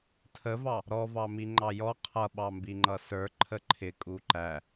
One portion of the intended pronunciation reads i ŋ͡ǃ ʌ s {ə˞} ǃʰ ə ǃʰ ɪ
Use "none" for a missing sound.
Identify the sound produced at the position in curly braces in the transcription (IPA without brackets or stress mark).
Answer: ə˞